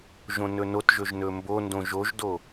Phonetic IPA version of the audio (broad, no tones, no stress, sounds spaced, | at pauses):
ʒ õ n ɵ n o t ʒ ɵ ʒ n ɵ m b o n d õ ʒ o ʒ d o